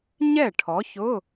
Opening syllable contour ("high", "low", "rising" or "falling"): falling